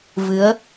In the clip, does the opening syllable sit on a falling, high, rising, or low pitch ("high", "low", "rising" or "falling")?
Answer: rising